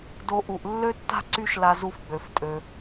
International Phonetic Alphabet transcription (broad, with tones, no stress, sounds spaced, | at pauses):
d o˧ ʔ u˩ ʔ lː ø˥ tː a̤˥ ǀ y˥ ʃ l a˧ z u˧ f ɡ͡b ø˩ f tʼ ø˩